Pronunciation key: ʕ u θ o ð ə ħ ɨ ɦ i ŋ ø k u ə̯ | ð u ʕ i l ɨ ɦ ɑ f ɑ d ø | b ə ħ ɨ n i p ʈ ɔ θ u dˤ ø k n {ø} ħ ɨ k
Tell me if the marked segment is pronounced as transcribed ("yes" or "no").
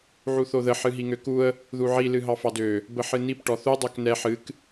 no